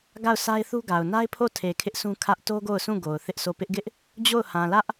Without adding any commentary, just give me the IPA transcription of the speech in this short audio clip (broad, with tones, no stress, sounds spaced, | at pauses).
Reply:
ɡ a˦˨ ʊ̯ sʰ a˦ ɪ̯ θ u˦ ɡ a˨ ʊ̯ n a˦ ɪ̯ pʰ o˦˨ tʰ e˨ kʰ ɪ˦ ʔ s ũ˦ kʰ ä˦ ʔ t o˦ ɡ o˦˨ ʊ̯ sʰ ũ˦˨ ɡ o˨ ʊ̯ θ ɪ˦ ʔ sʰ o˦˨ p ɪ˦ ʔ ɡ ɪ˦ ʔ | d͡ʑ o˦˨ ʊ̯ h ã˨ l ä˦ ʔ